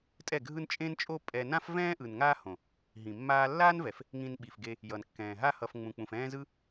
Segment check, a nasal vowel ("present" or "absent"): present